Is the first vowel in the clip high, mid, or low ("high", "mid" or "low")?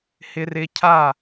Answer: high